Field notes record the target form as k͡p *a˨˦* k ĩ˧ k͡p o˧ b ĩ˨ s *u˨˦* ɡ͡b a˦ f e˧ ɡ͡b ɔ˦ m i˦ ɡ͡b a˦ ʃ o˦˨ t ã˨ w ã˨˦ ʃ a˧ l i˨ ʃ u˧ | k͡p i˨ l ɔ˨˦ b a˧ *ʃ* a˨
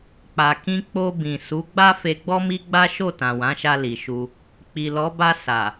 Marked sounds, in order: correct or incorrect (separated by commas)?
incorrect, correct, incorrect